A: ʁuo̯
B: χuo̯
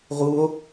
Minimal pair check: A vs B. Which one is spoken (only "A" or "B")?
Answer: A